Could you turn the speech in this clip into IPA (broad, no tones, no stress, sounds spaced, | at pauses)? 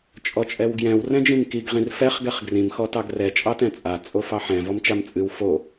t͡ʃʼ ɔ t͡ʃʼ ɛ w ɡ j ɛ̃ w r ɛ̃ d͡ʒ ĩ m k i ɡ ʁ ĩ r f ɛ χ ɡ ɛ χ ɡ r ĩ m x ɔ t ɑ ɡ r ɛ t͡ʃʼ ɑ t ɛ̃ t͡sʼ a t͡sʼ o f ɑ ħ ɛ̃ v ɔ m t͡ʃ a m t͡sʼ ɨ w f o